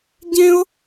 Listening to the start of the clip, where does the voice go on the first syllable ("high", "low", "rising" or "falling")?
high